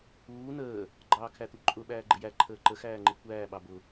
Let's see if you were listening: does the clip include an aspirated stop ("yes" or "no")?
yes